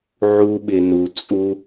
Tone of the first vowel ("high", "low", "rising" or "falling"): high